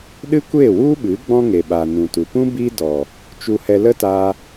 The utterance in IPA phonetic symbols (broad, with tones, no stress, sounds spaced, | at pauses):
ɗ ɨ˦ kʷ e˦˨ w u˦ ɓ ɨ˨˦ ɡ͡b ɔ̃˦ ŋ e˨ ɓ a˨ n ũ˨ t u˨ p ũ˦ b i˦ d ɔ˨ | t͡ʃ u˧ h ɛ˧ l ə˦ t aː˧